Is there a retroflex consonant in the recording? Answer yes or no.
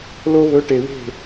yes